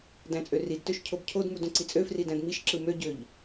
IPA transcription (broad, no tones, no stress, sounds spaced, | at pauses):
d æ̃ t͡sʼ ø r i d t ø ʃ cʰ o b cʰ o d m u d õ ǀ i t͡sʼ ø f r i d æ̃ d m i ʃ ǁ ɯ m ø ɟ ø ʎ